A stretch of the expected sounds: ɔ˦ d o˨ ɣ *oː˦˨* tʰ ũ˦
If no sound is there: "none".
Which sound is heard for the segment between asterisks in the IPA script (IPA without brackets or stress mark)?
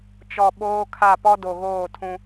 oː˦˨